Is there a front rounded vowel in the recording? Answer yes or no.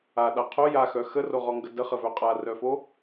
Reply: yes